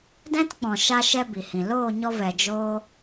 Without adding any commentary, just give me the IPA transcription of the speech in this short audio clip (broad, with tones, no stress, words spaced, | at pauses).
dɛ̃˦tk͡pɔ̃˨ ʃa˦ʃɛ˦ bi˨hĩ˨ loː˦˨ɲɔ˧vɛ˨ d͡ʒoː˦